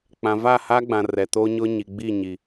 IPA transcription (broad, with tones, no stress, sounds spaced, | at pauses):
k͡p ã˨ v a˦˨ h a˦ ɡ͡b ã˨ r ɛ˨ t o˦ ɲ ʊ˦ ɲ i˨ ɡ͡b i˦˨ ɲ i˨